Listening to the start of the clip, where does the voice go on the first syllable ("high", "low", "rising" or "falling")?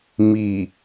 low